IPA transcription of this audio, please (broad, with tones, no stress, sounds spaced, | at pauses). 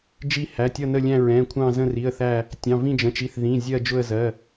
d͡ʒ i˦˨ h æ˩˧˩ tʲ ʌ˦˨ n ə˦˨ lʲ æ̃˦˨ ɹ ɛ̃˩˧˩ kʷʰ ɑ̃˦˨ z ə̃˦˨ r i˩˧˩ ə̯ θ æ˦˨ | tʲ ɑ̃˩˧˩ v ĩ˦˨ d͡ʒ ə̃˩˧˩ t͡ʃ i˩˧˩ θ ð ĩ˩˧˩ zʲ ɜ˦˨ d͡ʒ ʊ˦˨ ə̯ z ɜ˩˧˩